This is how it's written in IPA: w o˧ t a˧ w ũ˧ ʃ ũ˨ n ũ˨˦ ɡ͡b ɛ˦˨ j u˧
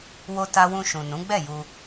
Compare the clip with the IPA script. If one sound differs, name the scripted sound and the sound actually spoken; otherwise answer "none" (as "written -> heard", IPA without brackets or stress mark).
none